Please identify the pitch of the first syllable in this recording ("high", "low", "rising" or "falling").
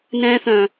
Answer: high